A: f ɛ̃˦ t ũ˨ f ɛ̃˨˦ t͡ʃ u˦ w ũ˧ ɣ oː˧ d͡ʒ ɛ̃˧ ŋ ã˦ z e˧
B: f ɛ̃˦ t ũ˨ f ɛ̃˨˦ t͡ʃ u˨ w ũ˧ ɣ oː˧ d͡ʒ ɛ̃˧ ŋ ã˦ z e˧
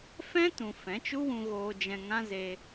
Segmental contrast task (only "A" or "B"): A